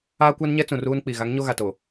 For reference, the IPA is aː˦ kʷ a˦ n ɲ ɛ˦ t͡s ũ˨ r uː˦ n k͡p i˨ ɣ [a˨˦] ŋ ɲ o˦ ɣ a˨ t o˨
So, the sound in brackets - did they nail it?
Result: yes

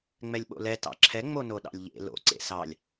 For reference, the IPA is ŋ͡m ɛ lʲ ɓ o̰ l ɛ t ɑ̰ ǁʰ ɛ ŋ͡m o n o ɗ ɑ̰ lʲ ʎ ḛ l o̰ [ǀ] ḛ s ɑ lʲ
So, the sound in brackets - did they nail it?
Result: yes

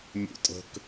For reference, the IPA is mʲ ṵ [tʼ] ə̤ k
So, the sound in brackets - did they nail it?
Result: yes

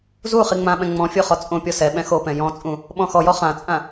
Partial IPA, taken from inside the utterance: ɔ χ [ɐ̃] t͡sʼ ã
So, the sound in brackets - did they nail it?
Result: no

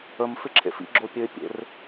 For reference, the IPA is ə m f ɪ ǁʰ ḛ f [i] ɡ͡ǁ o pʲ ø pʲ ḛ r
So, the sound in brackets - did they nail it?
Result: no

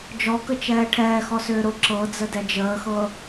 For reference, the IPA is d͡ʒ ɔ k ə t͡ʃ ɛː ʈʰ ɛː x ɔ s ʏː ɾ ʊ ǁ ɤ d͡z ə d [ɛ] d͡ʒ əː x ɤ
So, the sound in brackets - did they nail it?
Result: yes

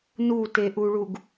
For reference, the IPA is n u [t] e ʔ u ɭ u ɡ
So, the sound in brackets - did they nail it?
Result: yes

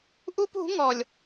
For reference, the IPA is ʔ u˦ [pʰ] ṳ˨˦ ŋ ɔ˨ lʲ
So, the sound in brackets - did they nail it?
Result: no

